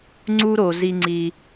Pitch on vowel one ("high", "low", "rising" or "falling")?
high